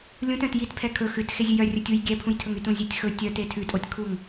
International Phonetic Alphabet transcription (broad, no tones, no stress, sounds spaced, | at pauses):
lʲ ũ t œ̃ t j i t pʰ ɛ kʰ ɵ x ʉ t x e zʲ ʉ j œ rʲ ɵ tʲ u j ɡʲ ɛ pʰ ũ j tʰ ɵ ŋ y t ũ zʲ e tʲ x ɵ tʲ œ t e tʰ ʉ tʼ o tʲ kʰ u ŋ